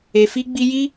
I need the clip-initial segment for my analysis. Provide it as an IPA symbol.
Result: e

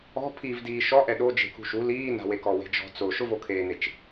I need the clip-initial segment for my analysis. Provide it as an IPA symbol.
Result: ɔ̤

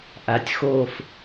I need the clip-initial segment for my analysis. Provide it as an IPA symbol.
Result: ʔ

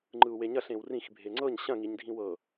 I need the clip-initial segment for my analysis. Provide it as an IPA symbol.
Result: ŋ͡ǃ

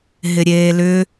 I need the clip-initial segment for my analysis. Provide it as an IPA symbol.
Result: ɦ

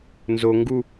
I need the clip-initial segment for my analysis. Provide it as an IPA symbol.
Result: n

